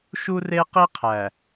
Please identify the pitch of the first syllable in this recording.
high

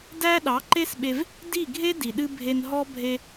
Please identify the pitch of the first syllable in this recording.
high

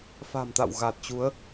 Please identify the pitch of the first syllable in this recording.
low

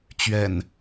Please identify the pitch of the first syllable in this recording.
low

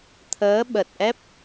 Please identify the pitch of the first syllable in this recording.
rising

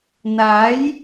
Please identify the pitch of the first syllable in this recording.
rising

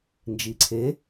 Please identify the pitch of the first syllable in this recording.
low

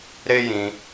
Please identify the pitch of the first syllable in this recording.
high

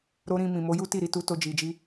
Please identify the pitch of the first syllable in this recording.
high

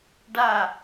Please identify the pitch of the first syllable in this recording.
falling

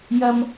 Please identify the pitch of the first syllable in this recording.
high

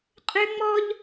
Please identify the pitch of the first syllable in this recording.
high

